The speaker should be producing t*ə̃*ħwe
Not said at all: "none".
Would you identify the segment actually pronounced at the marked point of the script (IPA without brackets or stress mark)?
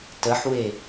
ə